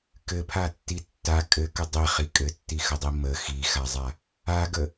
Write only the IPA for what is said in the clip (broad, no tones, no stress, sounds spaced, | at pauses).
k ɘ pʰ a tː i tː a kʼ ɘ k ə dˤ i χ i kʼ ɘ tː i x ə dˤ i m ə x i x a zˤ a | a ɡ ə